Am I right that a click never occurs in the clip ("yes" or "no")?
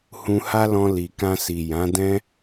yes